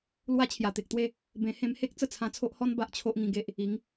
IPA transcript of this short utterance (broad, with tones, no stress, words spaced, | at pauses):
lwa˦ t͡ɕʰja˨˩t̪e˨k̚t̪we˥˧ | bẽ˧ hẽ˧mhe˦k̚ t͡sə˥˧t͡sʰã˧t͡sʰo˦ʔhɔ˦n ba˦ʔt͡ɕʰo˦ʔŋĩ˧ ɡe˦ʔ | i˨˦ŋ